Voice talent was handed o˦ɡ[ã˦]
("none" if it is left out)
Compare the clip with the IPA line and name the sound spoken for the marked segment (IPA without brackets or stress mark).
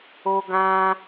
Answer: ã˦